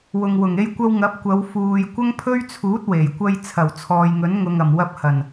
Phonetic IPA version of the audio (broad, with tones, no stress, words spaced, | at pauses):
wʊ˨ŋwʊ˨˩ŋ e˧jkʷɐ˧w ŋɐ˨˥p̚kʷɐ˨˧w fuː˨j kʷɐ˥ŋpʰɵ˥ɥt͡sʰuː˨˥t̚ we˨˩jkʷɐ˧j t͡sʰɐ˨˩w t͡sʰɔː˨jŋɵ˨˥nŋʊ˨ŋɐ˨˩m wɐ˧p̚hɐ˨˩n